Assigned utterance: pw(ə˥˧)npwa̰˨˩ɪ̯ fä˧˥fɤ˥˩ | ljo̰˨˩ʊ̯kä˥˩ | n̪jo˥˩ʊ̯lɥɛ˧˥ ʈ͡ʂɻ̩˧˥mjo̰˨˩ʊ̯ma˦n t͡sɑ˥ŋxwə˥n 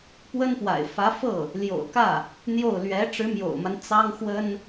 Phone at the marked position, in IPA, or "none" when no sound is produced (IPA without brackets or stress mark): ə˥